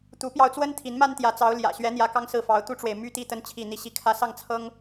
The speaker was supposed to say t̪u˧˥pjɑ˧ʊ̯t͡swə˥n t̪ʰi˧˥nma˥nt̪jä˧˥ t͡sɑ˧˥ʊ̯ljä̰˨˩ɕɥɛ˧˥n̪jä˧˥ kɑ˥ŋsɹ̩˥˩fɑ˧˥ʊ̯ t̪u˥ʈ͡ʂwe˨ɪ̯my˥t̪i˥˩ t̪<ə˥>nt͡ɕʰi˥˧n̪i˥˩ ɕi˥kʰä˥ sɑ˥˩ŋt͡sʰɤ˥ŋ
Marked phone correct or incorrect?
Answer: correct